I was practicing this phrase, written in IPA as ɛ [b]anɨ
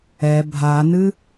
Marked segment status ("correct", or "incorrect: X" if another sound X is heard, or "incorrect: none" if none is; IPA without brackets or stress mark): incorrect: bʱ